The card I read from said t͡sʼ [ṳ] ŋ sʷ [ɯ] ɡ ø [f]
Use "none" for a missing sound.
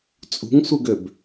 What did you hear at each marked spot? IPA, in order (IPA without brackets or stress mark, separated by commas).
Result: ṳ, ɯ, b